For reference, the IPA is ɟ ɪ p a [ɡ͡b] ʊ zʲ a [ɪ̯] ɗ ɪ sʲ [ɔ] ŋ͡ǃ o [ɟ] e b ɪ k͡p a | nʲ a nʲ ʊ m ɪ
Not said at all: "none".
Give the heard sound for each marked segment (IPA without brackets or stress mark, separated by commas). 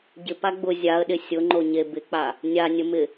ɡ͡b, ə̯, ʊ, ɲ